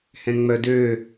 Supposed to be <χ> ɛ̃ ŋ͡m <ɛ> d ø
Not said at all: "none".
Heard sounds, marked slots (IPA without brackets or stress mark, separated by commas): h, œ